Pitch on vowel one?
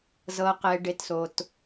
low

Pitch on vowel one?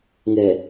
low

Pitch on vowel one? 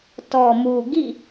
low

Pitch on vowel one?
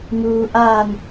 low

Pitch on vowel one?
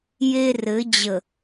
high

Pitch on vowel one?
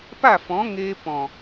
falling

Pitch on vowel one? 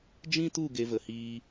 high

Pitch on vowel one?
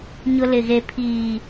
high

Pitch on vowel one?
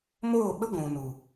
falling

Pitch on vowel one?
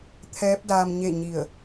rising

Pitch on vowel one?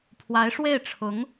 rising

